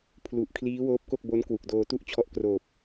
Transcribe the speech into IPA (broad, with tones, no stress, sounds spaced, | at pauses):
pʰ l u˨˩ ʔ kʰ l iː˦˥ w oː˦˥ p̚ k o˥˩ k̚ b o˦˥ n k w u˨˩ k̚ d oː˧ t u˥˩ ʔ t͡ɕʰ ɔ˦˥ ʔ k r oː˨˩ p̚